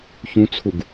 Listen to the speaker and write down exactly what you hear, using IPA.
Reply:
ç ũ t͡sʰ u ɡ

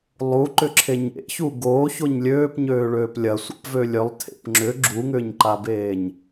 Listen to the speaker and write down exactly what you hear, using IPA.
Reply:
lˠ u ǃ ʏ ǁʰ e ɲ ḛ ç u ɡ oː ç o ɲ lʲ øː p ɲ øː ɭ øː p lʲ ɐ sʷ a̰ p v ø lʲ ø lˠ tʰ ḛ p ŋ͡ǁ ʏ ɡ͡ǁ u ŋ ʏː ɲ ǃ a b eː ɲ

